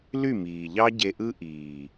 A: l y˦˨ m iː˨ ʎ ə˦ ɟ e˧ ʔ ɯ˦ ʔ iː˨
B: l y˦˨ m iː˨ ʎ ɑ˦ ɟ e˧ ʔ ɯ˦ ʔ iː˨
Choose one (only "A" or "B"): B